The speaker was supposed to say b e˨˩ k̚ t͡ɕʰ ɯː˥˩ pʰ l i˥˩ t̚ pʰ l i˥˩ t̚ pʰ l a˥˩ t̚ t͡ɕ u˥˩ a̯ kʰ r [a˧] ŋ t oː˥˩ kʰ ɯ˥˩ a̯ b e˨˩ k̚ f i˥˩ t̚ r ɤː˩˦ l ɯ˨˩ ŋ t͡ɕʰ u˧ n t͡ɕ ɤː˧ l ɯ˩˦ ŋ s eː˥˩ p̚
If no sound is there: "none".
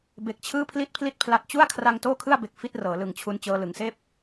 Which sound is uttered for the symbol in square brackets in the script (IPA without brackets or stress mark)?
a˧